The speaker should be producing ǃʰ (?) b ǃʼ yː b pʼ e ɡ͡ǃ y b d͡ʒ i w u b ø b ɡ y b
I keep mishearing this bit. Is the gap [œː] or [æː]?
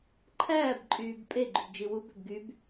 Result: æː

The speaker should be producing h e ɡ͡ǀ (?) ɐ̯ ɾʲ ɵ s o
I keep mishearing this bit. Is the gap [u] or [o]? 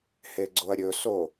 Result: o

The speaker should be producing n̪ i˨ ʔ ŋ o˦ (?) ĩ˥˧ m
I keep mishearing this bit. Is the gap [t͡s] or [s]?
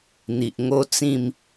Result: t͡s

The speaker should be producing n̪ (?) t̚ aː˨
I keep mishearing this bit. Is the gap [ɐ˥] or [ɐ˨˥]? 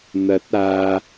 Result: ɐ˨˥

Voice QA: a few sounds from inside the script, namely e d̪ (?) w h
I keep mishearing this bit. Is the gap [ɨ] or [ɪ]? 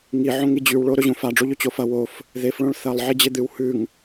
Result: ɨ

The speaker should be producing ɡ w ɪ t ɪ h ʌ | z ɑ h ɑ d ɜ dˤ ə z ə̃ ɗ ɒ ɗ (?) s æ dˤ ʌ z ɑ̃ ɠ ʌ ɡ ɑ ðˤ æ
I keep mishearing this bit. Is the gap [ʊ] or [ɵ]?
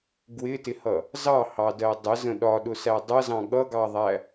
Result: ʊ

